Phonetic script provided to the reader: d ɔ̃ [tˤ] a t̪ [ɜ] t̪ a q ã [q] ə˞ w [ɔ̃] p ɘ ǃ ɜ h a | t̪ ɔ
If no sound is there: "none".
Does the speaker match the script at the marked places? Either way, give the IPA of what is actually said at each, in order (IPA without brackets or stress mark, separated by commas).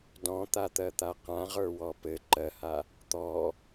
t̪, ɜ, ʁ, ɔ